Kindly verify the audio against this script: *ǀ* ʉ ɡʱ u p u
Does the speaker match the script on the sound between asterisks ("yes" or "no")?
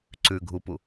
yes